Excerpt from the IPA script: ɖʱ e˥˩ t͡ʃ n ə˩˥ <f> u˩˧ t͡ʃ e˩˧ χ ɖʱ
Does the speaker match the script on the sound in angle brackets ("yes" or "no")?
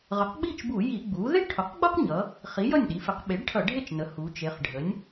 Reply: no